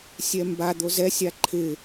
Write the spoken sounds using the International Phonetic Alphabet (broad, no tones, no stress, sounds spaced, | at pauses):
sʲ ɛ m b a d̪ o z ɛ sʲ a ǃʰ ɪ